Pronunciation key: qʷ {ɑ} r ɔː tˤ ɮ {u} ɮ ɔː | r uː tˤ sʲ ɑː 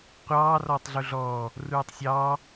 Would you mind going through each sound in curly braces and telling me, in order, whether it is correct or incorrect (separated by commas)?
incorrect, correct